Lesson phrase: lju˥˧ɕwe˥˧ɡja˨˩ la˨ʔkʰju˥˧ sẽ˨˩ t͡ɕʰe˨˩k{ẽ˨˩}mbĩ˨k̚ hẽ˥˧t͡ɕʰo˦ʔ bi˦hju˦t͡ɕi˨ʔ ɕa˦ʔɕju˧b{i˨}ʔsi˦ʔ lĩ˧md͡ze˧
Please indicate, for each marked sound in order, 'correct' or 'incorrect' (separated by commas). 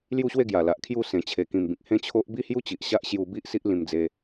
incorrect, incorrect